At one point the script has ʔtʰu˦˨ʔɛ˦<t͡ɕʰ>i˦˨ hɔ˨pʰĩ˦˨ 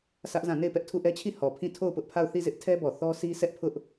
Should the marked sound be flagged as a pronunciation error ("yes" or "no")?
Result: no